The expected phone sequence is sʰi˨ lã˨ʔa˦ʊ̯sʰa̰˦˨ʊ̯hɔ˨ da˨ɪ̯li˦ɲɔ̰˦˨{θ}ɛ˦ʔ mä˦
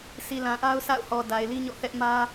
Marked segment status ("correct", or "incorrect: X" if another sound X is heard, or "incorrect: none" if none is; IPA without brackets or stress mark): correct